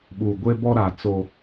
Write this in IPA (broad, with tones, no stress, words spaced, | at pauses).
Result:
ɓu˨ ɡʷe˦bɔ˦ɾa˨ t͡so˦